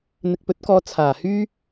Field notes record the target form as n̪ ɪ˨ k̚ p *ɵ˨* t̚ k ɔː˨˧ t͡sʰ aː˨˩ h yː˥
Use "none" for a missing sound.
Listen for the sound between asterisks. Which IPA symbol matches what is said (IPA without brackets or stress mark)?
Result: ɵ˨˥